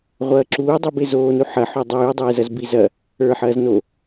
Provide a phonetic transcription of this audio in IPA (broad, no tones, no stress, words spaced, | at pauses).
ʁʷɐːǁuːdˤibe zoːnu ħɐ ħodˤʉːdˤeːzɐz bizɐ | ə˞ħɐːz no